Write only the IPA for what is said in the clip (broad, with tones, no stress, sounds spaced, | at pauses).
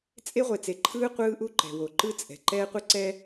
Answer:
t͡sʼ e˦ ʁʷ e˨ t͡s e˨ ǃʰ ɯː˦ qʷ ɯː˦ ʔ u˦ ǃ ɛ̤˨ w o˨ ǃ ɯ˦ t͡sʼ ɛ̤˨ ǃ ɛː˦ qʷ e˦ ǀ ɛ˦